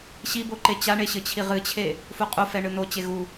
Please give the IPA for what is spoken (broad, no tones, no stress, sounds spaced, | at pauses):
ɕ i b o ǃ e t͡ɕ a ɳ e ɕ ɘ t͡ɕʰ i ʁ ɨ t͡ɕʰ e | f u qʼ u f ɛ ɳ ɨ n o t͡ɕ e ɣ u